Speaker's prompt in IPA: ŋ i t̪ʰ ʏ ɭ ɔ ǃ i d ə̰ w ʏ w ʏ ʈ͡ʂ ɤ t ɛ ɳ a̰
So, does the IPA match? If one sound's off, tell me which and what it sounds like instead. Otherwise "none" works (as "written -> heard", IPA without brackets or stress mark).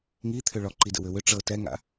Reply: ɳ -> ŋ